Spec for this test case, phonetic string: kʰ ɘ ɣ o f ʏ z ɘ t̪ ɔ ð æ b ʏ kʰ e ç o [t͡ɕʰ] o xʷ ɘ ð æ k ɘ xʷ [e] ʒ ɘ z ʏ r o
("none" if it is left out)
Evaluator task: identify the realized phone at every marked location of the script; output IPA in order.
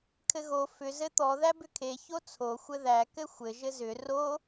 t͡sʰ, ɘ

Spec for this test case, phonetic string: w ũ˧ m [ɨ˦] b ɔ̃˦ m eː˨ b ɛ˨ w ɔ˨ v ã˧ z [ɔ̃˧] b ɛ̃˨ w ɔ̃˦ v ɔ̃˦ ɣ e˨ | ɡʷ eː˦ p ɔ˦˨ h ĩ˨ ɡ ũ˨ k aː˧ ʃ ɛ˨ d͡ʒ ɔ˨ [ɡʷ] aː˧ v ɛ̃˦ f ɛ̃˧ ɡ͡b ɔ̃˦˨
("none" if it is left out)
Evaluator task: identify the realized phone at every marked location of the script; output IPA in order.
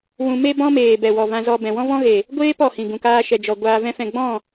e˦, ɔ˧, ɡʷ

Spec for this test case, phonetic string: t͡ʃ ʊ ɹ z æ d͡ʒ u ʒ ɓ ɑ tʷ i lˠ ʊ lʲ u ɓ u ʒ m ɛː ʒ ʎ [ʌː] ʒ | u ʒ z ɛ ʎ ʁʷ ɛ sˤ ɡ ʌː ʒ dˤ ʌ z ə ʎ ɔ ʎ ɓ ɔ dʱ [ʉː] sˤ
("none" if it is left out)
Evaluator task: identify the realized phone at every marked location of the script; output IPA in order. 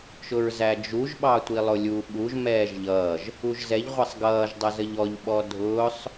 ʌː, ʊː

